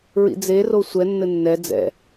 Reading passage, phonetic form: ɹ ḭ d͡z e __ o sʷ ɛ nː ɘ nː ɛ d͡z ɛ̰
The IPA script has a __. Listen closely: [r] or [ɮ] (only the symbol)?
r